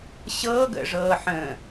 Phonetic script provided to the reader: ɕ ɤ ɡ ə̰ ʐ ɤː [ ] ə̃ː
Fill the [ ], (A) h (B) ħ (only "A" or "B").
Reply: B